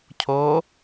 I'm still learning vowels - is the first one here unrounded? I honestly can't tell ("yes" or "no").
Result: no